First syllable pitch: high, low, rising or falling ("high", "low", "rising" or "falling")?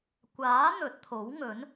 rising